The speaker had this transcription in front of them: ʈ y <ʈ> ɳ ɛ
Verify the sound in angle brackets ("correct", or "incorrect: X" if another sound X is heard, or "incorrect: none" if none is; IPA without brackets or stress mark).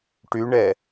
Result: incorrect: none